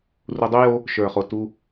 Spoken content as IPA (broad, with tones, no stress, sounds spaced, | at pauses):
r u˧ dˤ u˦ j o˦ | ʃ ə˞˨ χ o˨ t u˦